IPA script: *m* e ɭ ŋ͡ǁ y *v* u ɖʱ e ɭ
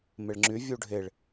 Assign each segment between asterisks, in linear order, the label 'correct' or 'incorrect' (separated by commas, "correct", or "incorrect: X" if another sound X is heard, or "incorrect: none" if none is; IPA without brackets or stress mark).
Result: correct, incorrect: vʲ